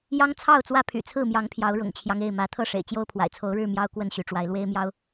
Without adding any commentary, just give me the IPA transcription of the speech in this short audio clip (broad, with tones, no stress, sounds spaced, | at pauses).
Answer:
j ɑ˦ ŋ t͡sʰ ɑ˥˨ ʊ̯ t͡s w ä˦ pʰ y̰˨˩ t͡sʰ ɹ̩˥˨ m j ɑ˨˦ ŋ pʰ j ɑ˨˦ ʊ̯ ɻ ʊ̰˨˩ ŋ t͡ɕʰ j ɑ˦ ŋ e˥˨ ɪ̯ m ä˨˦ t̪ʰ ɤ˥˨ ʂ ḛ˨˩ ɪ̯ t͡ɕ j o˦ ʊ̯ pʰ w a̰˨˩ ɪ̯ t͡sʰ o˨˦ ʊ̯ ɻ ɻ̩˥˨ m j ɑ˦ ʊ̯ k w ə˥˨ n ɕ y˨˦ ʈ͡ʂ w a˨˦ ɪ̯ l w e˦ ɪ̯ m j ɑ˦ ʊ̯